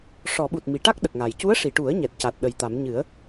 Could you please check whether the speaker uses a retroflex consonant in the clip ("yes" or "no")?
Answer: yes